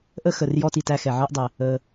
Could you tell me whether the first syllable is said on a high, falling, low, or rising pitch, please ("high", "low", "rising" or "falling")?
high